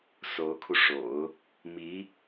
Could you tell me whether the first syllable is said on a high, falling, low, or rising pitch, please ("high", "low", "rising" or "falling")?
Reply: rising